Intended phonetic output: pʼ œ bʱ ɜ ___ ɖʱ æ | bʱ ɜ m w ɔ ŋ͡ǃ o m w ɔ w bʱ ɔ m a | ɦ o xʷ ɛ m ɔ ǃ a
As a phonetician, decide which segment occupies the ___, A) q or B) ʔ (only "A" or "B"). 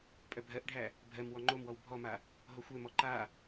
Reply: B